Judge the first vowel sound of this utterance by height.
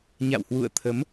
low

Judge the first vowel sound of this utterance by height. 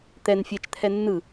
mid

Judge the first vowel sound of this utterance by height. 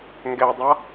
mid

